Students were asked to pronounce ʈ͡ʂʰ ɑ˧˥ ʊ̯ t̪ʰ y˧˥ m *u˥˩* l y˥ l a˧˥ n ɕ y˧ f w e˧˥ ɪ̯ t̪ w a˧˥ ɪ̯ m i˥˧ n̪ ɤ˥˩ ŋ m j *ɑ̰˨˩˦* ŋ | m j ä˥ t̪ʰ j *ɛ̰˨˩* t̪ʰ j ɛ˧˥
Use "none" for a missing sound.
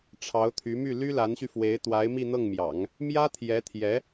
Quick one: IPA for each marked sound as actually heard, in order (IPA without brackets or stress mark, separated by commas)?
y˥˩, ɑ̰˨˩˦, ɛ˧˥